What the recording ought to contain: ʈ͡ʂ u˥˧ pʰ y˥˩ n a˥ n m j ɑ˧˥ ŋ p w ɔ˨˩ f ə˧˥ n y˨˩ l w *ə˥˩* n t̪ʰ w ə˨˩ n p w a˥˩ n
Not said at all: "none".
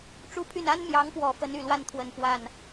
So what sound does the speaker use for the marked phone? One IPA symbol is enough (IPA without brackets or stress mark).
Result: a˥˩